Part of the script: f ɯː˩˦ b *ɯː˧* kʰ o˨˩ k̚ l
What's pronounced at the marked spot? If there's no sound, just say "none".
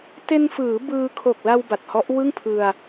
ɯː˧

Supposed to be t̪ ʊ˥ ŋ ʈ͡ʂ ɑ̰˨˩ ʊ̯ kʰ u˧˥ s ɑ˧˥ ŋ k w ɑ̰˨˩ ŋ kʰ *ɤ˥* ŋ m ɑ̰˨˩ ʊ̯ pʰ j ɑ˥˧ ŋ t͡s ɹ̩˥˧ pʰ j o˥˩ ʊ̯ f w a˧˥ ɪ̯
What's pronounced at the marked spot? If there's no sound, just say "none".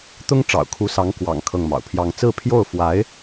ɤ˥˩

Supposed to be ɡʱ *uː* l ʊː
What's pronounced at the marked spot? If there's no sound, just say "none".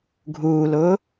uː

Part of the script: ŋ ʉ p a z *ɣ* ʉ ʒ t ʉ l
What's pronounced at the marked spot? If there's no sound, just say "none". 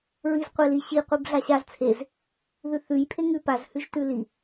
h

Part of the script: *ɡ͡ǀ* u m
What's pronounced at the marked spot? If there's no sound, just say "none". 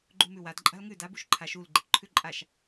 ɡ͡ǃ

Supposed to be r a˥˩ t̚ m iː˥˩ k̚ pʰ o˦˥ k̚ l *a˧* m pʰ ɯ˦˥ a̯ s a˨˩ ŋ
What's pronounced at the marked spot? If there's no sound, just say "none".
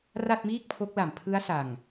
a˨˩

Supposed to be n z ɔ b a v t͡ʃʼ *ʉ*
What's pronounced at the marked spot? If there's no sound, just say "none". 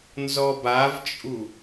u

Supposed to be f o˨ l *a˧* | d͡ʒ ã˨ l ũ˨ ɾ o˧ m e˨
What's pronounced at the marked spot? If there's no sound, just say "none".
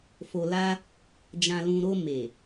a˧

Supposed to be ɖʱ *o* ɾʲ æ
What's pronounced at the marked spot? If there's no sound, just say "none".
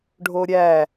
o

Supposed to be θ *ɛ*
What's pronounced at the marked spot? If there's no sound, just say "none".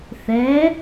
ɛ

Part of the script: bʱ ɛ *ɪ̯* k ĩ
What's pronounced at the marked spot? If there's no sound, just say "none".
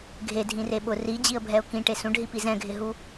ʊ̯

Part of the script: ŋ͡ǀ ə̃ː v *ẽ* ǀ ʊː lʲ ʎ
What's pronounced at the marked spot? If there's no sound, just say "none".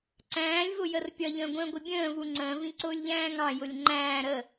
ĩ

